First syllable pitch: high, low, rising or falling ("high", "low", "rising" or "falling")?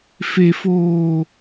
high